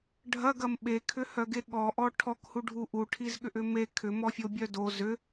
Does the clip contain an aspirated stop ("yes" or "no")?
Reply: yes